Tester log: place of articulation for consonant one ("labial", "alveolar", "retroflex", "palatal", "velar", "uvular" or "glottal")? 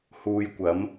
glottal